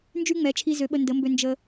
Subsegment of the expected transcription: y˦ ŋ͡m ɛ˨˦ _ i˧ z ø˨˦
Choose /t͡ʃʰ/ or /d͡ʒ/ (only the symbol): t͡ʃʰ